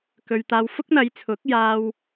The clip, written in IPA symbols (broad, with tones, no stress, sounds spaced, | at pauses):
k ɵ˨ ɥ t̪ aː˧ w f ʊ˥ k̚ n̪ ɐ˨˧ j t͡sʰ ʊ˨˥ k̚ j aː˧ w